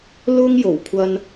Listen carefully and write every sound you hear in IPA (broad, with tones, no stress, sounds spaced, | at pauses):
l ʊ˥ ŋ j o˨˩ w kʷʰ ɐ˧ n